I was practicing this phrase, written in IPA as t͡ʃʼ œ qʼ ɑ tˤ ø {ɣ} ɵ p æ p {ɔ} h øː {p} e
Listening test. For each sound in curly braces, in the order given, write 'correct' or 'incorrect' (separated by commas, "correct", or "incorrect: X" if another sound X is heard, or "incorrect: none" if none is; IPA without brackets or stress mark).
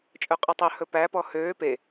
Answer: incorrect: h, correct, correct